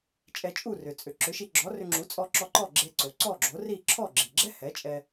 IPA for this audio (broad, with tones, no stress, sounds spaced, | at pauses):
t͡ʃʼ ɛ˧ t͡ʃʼ u˥˩ r ʏ˩ t͡sʼ ʏ˩ ǁ ʏ˩˥ ʃ i˧ ɡ͡ǁ ɔ˩˥ r ʏ˧ ŋ͡ǁ u˩˥ t͡sʼ ɔ˧ ǁ ɔ˧ ǃ ɔ˥˩ ɡ͡ǁ e˧ ǀ o˩ ǀ ɔ˥˩ ɡ͡ǁ o˩˥ r i˥˩ ǁʰ ɔ˥˩ ɡ͡ǁ i˩ ɡ͡ǁ ɛ˥ h ɛ˩˥ t͡ʃʼ ɛ˧